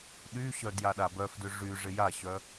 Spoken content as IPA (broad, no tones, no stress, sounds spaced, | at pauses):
ɗ y ɕ œ d j a ɗ a b œ f d ʏ ʐ y ʐ ɪ j a ɕ œ